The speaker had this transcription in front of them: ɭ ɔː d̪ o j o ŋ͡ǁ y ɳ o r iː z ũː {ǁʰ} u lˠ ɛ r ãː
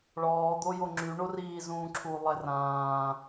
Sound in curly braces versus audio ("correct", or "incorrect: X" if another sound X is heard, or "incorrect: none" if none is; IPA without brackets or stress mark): correct